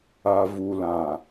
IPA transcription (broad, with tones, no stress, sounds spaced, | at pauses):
a˨ v u˨ l ã˨